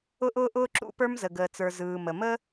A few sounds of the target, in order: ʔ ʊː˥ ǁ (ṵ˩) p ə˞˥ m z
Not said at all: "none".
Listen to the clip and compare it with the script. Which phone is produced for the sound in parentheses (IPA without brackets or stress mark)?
ṵ˥